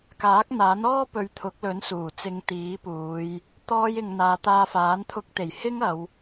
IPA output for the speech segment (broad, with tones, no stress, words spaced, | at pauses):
kaː˨˥k̚n̪aː˨˥nɔː˥ pɵ˧ɥ t̪ʰʊ˨˥k̚lɵ˨˥n suː˨˩t͡sɪ˧ŋt̪iː˨˥puː˨˧j | t̪ɔː˥jɪ˧ŋ n̪aː˨˧t̪aː˧faː˨˥n t̪ʰʊ˧k̚t̪e˨˩j hɪ˥ŋɐ˨˧w